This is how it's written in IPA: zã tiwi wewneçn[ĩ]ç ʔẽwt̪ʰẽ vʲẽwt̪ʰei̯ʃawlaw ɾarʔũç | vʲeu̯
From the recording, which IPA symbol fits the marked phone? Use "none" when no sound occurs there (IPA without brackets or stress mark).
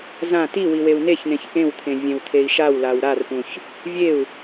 ẽ